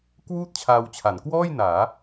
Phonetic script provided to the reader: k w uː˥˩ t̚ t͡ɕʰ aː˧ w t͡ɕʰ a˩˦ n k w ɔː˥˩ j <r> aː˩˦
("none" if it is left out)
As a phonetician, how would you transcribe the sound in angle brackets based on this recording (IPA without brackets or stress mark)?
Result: n